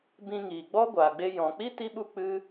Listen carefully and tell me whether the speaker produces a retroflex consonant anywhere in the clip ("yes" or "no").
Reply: no